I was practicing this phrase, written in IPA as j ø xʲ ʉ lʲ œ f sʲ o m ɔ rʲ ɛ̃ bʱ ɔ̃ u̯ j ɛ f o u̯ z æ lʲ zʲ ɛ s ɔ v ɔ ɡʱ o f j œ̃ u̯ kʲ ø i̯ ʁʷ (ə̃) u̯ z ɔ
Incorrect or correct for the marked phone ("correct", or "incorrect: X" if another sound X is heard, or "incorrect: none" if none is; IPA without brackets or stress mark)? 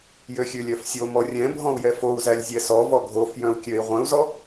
incorrect: œ̃